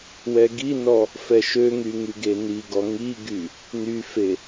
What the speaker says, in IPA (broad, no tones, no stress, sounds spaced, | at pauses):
w ɛ ɡ i n ɔ | f ɛ ʃ ø ŋ y ŋ y ɡ e n i ɡ ɔ ŋ i ɡ y | n y f e